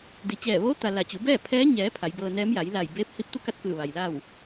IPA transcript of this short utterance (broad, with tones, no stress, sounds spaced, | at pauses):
d i˩ t͡ɕ ɛː˧˩ ʋ oː˧˥ t̪ a˩ l a˧˩ t͡ɕ u˩˧ b ɛː˥˨ pʰ ɛː˧˥ ɲ ɛː˩˧ pʰ a˩˧ j b ɤː˧ n ɛː˧˥ m j a˩˧ j l a˧˩ j b eː˧˥ p̚ h i˧˥ p̚ t̪ u˥˨ k a˥˨ t̚ k ɯː˧˩ ʋ a˩ j l a˥˨ w